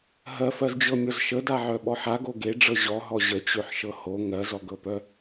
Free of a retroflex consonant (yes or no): no